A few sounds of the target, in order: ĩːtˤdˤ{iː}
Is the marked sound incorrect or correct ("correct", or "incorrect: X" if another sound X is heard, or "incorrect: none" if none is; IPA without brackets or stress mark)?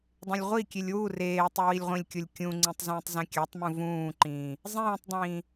incorrect: ĩː